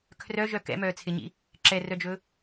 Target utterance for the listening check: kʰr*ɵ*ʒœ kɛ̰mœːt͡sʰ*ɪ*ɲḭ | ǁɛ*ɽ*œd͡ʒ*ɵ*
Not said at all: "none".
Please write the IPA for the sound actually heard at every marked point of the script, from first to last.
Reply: œ, ɪ, r, ɵ

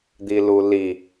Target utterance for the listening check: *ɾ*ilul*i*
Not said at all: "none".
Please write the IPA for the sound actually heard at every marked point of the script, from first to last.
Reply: d̪, i

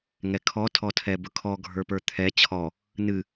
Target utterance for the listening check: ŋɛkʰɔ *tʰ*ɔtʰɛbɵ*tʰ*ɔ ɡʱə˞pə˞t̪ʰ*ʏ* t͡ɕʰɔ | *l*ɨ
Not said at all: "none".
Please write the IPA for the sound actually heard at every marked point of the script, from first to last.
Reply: tʰ, kʰ, ɛ, n

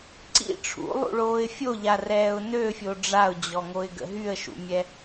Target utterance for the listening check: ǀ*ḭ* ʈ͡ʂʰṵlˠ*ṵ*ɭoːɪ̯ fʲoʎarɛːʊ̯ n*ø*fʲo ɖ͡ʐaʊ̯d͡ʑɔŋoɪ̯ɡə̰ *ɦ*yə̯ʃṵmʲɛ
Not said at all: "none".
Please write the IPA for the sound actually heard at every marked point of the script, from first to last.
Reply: ḭ, ṵ, ø, ɦ

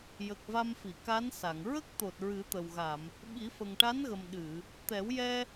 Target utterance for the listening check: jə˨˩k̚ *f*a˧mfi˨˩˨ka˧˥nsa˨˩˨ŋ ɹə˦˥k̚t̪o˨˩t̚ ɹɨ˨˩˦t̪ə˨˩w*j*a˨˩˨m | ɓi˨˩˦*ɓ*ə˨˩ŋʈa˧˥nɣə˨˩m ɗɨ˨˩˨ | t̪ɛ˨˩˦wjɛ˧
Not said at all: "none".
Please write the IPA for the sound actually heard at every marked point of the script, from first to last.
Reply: v, ɣ, f

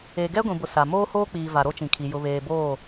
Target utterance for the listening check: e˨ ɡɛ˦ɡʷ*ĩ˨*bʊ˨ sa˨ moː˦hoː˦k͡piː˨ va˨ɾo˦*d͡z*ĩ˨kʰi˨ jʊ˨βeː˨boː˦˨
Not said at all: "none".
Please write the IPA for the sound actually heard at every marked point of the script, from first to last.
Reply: ĩ˨, t͡ʃ

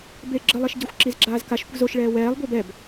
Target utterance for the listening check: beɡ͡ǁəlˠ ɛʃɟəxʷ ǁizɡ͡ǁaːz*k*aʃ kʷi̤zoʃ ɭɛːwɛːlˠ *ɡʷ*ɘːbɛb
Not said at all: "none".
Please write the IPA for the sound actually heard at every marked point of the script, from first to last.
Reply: k, ɡʷ

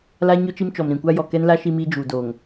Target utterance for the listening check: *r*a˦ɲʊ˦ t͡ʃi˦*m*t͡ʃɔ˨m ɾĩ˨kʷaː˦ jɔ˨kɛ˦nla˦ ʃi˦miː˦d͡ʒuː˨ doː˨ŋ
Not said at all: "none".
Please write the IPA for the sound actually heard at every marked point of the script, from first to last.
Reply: l, m

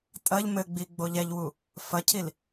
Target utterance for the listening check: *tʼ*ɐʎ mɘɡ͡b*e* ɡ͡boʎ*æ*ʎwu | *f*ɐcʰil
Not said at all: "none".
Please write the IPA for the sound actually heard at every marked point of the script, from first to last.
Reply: tʼ, i, ɛ, f

